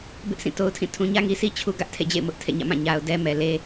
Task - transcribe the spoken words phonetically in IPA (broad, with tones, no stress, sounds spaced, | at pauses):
b ɪ˦ ʔ sʰ ĩ˦˨ t o˦ ʊ̯ tʰ ĩ˦˨ tʰ ũ˨ ɲ ä˦ ŋ i˨ sʰ i˦ t͡ɕʰ u˦ ɡ ä˦ ʔ tʰ ḛ˦˨ d͡ʑ ḛ˦˨ ɪ̯ m ʊ˦ ʔ tʰ ḛ˦˨ ɲ ä̰˦˨ m ã˦˨ ɲ a˨ ʊ̯ d ɛ˦ m ɛ˨ l e˦